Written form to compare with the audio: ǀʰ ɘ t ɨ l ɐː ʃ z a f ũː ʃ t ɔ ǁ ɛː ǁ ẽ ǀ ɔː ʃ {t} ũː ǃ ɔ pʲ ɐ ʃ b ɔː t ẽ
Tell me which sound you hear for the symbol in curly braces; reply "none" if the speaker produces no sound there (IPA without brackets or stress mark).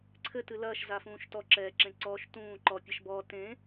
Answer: t